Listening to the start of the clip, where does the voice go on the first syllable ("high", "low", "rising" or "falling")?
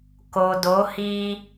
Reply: low